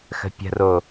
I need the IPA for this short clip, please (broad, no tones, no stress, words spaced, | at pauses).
xə̤pʲə̤ro